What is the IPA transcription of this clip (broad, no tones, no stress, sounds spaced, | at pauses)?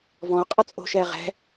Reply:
v ɔ̃ o̯ qʼ ʌ t͡sʼ o̤ ʃ ɛː ʁ ɛ̤